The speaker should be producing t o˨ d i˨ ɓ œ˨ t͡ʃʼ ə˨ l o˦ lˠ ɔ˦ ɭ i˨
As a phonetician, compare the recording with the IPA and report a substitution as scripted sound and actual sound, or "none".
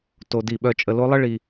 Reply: ɔ˦ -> ə˦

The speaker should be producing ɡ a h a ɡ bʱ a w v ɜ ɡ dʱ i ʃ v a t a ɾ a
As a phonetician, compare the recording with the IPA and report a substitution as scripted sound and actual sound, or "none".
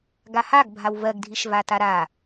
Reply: none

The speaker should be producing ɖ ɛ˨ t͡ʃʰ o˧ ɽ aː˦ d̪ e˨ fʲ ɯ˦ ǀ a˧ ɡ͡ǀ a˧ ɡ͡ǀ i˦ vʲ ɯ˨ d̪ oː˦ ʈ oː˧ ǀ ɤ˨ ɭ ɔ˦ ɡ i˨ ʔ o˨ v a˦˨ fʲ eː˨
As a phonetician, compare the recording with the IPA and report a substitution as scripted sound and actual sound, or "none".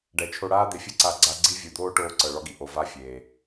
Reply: none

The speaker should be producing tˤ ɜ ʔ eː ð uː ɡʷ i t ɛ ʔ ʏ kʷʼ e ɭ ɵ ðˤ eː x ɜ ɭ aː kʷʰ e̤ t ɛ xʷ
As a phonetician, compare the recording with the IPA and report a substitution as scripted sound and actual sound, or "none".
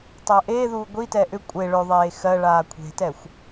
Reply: none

